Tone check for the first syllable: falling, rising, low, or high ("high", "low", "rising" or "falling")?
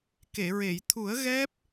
low